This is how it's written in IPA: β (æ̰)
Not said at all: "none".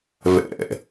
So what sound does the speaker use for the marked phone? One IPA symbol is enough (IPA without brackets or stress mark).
ɛ̰